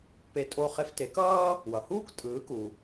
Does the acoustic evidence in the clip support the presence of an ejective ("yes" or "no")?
yes